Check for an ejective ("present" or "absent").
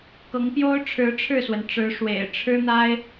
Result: absent